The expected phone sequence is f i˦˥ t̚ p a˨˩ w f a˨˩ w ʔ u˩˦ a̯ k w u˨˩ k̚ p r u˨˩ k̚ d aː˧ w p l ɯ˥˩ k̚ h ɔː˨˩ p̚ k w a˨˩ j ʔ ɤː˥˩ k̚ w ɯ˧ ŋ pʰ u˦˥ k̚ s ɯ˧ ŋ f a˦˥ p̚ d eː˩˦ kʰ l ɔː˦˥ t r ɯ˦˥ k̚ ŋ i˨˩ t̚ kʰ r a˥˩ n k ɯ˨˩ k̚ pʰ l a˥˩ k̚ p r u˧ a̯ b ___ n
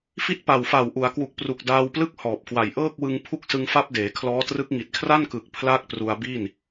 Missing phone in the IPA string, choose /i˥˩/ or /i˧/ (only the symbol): i˥˩